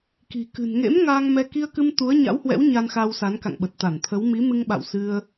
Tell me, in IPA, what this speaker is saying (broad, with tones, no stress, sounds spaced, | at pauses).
k i̤˨˩ k ɨ̤˨˩ n ŋ ḛ˧˥ m ŋ aː˧ ŋ m ɛ˧ k i˧ ə̯ k ɨ˧ m t̪ u˨˦ ə̯ ɲ a̰˧˥ w h w ɛ̰˧˥ w ɲ a˧ n x a˧ w s a˨˦ n k a̰˧˨ ŋ ɓ ə˨˩ t̚ t̪ a˧˩ n t̪ʰ ə˨˦ w m i˨˦ m ɨ˧ ŋ ɓ a̰˧˨ w s ɨ˧ ə̯